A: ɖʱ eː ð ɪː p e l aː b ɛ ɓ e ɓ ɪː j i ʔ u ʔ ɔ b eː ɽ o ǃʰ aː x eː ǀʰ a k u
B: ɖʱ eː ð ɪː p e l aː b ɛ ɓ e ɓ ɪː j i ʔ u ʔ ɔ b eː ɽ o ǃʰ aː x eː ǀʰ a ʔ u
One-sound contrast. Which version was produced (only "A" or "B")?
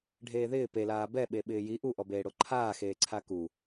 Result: A